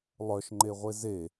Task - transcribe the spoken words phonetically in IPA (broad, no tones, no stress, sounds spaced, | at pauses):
lˠ œ ʃ ŋ͡ǃ e ʁʷ e z e